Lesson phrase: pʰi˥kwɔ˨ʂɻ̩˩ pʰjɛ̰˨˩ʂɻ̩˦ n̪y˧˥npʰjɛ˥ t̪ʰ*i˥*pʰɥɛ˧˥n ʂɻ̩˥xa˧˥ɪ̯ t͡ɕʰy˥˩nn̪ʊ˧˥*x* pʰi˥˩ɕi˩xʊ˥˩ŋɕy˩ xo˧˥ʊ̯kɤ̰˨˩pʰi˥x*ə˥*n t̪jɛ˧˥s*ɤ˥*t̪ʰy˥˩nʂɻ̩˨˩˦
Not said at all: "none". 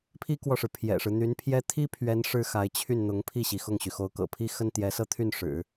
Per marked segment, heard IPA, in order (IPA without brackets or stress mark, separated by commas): i˥, ŋ, ə˥, ɤ˥˧